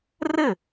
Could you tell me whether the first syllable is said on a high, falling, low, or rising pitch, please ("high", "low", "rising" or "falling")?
falling